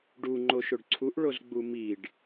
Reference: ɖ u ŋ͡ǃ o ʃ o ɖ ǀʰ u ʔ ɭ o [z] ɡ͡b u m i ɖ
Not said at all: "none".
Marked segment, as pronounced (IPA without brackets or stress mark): z